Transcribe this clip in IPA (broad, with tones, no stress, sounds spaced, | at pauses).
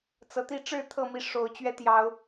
t͡s ɤ˨˦ t̪ i˥˨ ʈ͡ʂ ɻ̩˥˨ t̪ʰ ɤ˥˨ m i˥˨ ʂ o˨˦ ʊ̯ t͡ɕ ɥ ɛ˦ t̪ j ɑ˨˦ ʊ̯